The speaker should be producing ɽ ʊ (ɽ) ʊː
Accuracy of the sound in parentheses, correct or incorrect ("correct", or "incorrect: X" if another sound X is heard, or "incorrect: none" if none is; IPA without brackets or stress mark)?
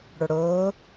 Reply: correct